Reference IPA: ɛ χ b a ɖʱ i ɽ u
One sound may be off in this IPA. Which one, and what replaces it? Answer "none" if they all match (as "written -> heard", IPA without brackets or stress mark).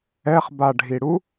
none